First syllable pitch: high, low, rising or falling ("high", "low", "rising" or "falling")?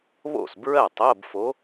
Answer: falling